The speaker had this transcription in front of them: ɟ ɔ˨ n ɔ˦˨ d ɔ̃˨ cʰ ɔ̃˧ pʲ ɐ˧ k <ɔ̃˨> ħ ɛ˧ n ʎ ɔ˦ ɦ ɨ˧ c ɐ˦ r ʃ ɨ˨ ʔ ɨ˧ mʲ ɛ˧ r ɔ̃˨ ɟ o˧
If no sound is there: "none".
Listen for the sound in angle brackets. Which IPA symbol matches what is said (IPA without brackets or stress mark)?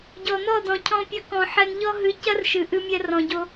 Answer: ɔ̃˨